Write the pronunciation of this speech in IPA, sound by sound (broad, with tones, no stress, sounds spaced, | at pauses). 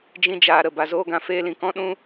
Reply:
d͡ʒ ĩ˧ d͡ʒ aː˨ ɾ ə˦˨ b a˨ z oː˧ ɡ ã˨ f eː˧ l ĩ˨ k ɔ̃˦ ɗ ũ˧